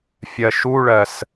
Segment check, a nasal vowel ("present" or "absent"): absent